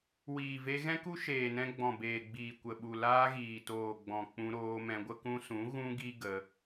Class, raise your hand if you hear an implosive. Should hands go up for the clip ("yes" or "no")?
yes